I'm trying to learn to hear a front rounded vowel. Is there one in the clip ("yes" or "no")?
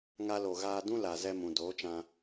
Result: no